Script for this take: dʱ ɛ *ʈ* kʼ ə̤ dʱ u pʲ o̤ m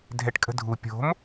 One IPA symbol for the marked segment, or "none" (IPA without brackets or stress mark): ʈ